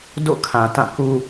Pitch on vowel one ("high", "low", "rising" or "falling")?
falling